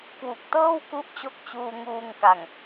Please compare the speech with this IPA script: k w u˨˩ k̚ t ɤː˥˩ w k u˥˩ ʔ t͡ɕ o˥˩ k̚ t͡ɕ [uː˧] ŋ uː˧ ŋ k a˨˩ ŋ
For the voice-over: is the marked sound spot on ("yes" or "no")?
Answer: yes